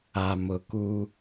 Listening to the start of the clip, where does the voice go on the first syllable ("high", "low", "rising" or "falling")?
low